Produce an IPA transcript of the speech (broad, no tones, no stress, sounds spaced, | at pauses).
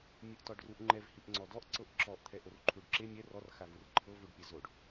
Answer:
mʲ ɯ ʔ t ɔ ɖ r u ʔ ŋ͡ǃ ɛ v h i ʔ ŋ͡ǀ ɔ d ɔ ʔ ǀ ɤ ʔ ǁ ɔ ʔ t̪ʰ ɛ ʔ o r ǃʰ u ɖ ǁ e mʲ ɛ r ɔ r x a v ɯ r ǃʰ ɤ v u ɖ pʲ ɛ z o ɖ